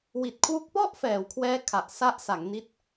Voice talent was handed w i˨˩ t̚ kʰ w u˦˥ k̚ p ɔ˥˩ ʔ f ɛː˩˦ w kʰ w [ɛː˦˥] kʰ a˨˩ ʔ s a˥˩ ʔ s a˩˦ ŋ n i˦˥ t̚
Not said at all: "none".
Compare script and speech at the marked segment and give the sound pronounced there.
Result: ɛː˦˥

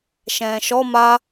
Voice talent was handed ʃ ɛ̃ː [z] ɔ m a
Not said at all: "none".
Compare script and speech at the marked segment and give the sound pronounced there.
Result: ʃ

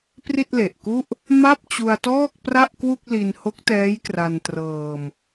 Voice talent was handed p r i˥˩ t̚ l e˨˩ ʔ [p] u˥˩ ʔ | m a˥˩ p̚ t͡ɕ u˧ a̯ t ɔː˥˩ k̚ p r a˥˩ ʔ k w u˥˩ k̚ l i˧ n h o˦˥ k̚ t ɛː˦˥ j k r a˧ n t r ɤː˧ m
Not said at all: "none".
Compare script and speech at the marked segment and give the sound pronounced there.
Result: k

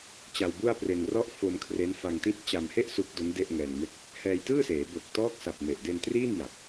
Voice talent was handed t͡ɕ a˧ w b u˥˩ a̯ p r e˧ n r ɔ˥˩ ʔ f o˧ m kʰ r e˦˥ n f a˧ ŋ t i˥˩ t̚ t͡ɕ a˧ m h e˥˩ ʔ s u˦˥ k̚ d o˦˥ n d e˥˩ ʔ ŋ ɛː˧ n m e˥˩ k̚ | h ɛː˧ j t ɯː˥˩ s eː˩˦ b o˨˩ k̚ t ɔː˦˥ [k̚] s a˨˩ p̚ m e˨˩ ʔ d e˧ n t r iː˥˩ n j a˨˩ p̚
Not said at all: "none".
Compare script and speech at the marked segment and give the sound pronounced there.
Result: k̚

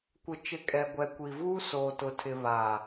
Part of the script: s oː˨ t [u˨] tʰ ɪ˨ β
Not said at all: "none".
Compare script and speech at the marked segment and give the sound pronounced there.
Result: ʊ˨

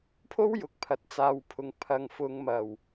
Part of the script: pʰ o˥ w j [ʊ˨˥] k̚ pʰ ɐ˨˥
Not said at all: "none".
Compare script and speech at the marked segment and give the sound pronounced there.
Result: ʊ˨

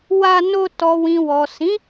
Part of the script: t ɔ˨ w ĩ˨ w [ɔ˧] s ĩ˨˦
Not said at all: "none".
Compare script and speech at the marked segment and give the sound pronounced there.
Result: ɔ˨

